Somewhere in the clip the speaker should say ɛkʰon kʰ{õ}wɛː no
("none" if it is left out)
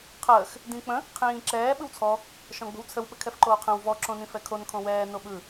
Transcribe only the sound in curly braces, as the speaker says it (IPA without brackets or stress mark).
õ